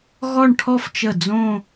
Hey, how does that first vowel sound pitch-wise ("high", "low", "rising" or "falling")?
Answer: falling